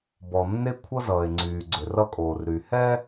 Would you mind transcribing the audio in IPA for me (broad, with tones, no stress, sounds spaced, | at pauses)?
b ɔ˨ nː e˦ kʷʰ ʌ˦ z ʌː˨ e̯ ŋ͡ǀ yː˨ ɡ͡ǀ ʏ˨ r ʌ˦ kʼ oː˨ r ɾ y˨ h ɛ˦